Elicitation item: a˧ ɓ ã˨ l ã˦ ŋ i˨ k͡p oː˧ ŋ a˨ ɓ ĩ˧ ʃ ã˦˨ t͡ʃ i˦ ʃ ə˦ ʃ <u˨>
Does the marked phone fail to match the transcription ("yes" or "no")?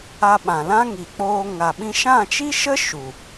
no